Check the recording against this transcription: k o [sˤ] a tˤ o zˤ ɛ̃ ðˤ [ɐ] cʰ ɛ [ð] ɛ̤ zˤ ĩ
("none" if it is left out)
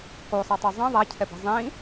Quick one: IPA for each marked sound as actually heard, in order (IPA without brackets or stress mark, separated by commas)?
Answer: sˤ, a, b